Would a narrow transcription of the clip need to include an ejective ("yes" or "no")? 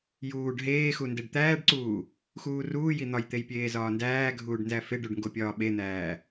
no